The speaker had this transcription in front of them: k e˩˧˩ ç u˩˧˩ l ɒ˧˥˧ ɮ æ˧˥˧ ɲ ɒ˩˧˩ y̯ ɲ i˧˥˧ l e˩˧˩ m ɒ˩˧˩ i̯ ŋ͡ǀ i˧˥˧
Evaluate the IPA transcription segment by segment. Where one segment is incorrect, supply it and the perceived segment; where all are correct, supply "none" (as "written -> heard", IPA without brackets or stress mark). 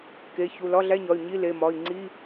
none